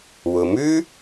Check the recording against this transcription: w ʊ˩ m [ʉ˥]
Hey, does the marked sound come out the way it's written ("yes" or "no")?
yes